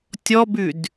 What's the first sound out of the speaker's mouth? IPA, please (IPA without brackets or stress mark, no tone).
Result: tʲ